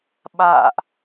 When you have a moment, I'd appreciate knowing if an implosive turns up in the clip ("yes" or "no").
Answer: yes